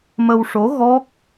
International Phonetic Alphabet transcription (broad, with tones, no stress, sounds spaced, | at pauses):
m ə˧ w ʂ o˧˥ ɣ ɔ˦˥ k̚